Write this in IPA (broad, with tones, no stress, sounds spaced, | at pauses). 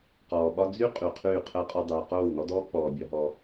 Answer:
q ɔː˨ ɓ ɒ˦ d͡z y˦ qʼ y˨ qʰ yː˦˨ qʰ əː˦ qʼ ɔ˦ dˤ yː˨ q oː˦˨ w n ɔ˦ d ɔː˦ k͡p ɔː˨ bʲ ɒ˦ ɦ ɔ˦